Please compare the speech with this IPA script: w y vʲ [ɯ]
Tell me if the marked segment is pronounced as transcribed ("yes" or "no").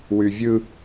yes